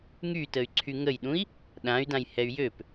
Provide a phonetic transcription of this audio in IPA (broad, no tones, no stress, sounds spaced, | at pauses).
ŋ y t ə y̯ ǀʰ y ŋ ə j ɗ ũ i̯ | ɗ ã y̯ d ã j h ɛ y̯ j ø p